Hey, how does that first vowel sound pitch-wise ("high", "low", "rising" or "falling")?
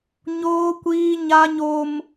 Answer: high